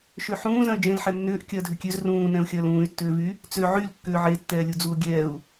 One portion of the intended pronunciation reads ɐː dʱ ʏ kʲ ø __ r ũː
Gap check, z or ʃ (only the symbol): z